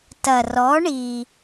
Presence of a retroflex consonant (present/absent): present